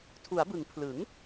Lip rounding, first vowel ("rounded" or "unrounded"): rounded